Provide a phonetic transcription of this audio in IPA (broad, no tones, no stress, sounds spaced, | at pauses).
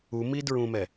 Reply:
u m i d ɹ ũ m ɛ